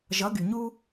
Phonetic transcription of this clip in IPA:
ʒ ʌ˨˦ ɡ y˨ ɲ u˦

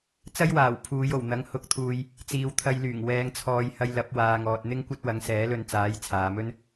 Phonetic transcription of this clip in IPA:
t͡s ɐ˥ j w aː˨˩ w pʰ uː˨˧ j o˨˩ w n̪ ɐ˨˥ ŋ h ʊ˨˥ k̚ t̪ʰ uː˨ j | t͡s iː˨ w t̪ʰ ɐ˧ j l yː˨˩ ŋ w ɛː˧ ŋ t͡sʰ ɔː˧ j h ɐ˧ j l ɐ˨˥ p̚ w aː˨ ŋ ɔː˨ t̚ n̪ ɪ˥ ŋ kʷ ɐ˥ t̚ w ɐ˨˥ ŋ s ɛː˨˥ l ɵ˧ n t͡s aː˨˥ j t͡sʰ aː˨ m ɵ˥ n

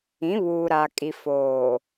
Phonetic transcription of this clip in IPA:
ĩ˨˦ β uː˨ ɾ a˨ kʼ i˨ f oː˨

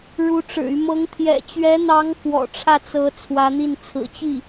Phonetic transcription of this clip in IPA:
ɻ u˧˥ ʈ͡ʂ ɻ̩˨˩ y˦ m ɤ˧˥ ŋ t̪ʰ j ɛ̰˨˩ t͡ɕ ɥ ɛ˧˥ n̪ ɑ˧˥ ŋ f w ɔ̰˨˩ ʈ͡ʂʰ ä˥˩ t͡s ɤ˧˥ t͡sʰ w ä˧˥ n̪ i˥˩ n t͡sʰ ɹ̩˨˩ t͡ɕ i˥˩

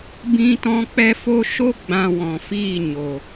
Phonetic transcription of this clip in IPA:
b ĩ˦ t ɔ̃˦ k͡p ɛ˦ f o˦ ʃ o˦ ɡ͡b ã˧ w ɔ̃˨ f iː˦˨ ɲ o˨

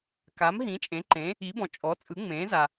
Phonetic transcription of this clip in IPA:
k a˩˥ m ɦ ĩ˩˥ t͡ʃʼ ẽ˩˥ ǃ ẽ˩˥ | i˩˥ b ɔ̃˩ t͡ʃʼ ɔ˩˥ t͡sʼ ɯ˩˥ ŋ͡m ẽː˩˥ z a˩

